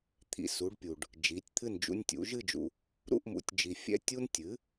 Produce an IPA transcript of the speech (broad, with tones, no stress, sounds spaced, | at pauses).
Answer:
t̪ʰ ḭ˨ s u˩˥ ɖ pʲ u˨ ɖ | d͡ʒ i˩˥ tʲ t̪ʰ ɨ˥˨ n d͡ʒ ṵ˦ nʲ tʲ ṵ˩˥ ʒ ɨ˥˨ d͡ʒ ṵ˨ | ɾ ṵ˥˨ ʔ m ṵ˩˥ tʲ d͡ʒ i˨ fʲ ɛ̰˦ tʲ u˦ n tʲ ɨ˩˥